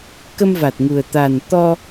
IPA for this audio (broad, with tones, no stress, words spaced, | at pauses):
kə˧mva˨˩t̚ŋu˨˩ə̯ t̪a˨˩n t̪ɔ˧